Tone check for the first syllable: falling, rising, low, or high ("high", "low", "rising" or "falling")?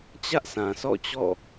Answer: high